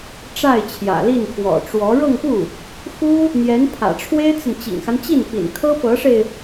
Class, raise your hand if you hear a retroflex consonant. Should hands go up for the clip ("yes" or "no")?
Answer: yes